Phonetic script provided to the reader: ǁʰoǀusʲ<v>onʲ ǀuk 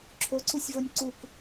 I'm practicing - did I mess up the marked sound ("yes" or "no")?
no